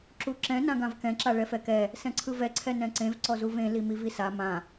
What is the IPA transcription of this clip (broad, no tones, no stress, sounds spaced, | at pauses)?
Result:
ǁ u ǁ ɛ̃ n ã ɡ ã v k ɛ̃ ǁ a ɭ ɛ f ɛ k ɛ | s ɛ̃ ǀʰ ɯ v ɛ ǀʰ ɛ n ɛ̃ ǀ ẽ v ǀ ɔ z u v ẽ l i m i v i s a m ã